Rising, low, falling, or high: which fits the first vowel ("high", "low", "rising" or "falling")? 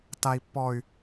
high